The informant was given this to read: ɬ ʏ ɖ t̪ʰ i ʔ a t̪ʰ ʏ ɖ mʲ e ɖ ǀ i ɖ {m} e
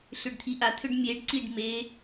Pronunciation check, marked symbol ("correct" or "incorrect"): correct